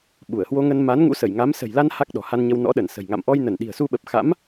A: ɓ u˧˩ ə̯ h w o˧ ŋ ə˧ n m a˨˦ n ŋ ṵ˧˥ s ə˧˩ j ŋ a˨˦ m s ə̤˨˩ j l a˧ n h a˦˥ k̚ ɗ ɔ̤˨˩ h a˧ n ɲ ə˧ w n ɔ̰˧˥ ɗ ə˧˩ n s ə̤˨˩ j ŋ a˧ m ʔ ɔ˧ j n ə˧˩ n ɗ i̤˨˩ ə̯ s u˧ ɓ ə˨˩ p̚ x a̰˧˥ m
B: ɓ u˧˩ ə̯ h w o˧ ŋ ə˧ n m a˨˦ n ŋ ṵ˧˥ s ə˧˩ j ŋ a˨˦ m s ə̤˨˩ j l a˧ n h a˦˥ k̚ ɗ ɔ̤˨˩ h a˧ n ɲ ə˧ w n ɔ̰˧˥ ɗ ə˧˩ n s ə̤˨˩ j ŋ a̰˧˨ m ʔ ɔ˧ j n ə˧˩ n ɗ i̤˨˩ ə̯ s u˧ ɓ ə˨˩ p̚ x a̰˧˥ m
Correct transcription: B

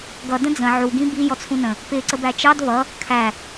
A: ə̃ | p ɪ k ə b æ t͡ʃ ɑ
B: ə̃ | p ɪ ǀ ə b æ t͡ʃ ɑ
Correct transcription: B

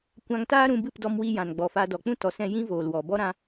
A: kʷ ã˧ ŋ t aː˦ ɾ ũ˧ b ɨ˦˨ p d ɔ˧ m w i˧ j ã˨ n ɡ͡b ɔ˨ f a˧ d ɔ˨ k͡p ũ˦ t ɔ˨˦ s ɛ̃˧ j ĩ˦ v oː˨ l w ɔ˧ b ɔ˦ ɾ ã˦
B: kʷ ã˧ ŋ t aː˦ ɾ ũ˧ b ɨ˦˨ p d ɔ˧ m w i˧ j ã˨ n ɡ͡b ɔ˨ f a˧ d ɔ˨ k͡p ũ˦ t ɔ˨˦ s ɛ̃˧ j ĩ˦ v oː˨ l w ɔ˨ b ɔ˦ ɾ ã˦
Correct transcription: B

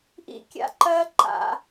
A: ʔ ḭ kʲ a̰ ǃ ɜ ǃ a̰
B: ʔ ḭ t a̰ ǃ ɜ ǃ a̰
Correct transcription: A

